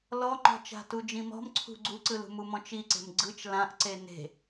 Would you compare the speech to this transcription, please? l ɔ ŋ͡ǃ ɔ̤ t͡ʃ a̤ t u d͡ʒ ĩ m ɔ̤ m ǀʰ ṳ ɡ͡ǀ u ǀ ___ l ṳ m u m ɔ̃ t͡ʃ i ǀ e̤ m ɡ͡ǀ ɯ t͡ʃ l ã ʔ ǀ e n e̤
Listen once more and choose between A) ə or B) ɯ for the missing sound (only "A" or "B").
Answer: B